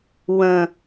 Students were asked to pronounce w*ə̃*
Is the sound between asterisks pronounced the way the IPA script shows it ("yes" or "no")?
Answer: yes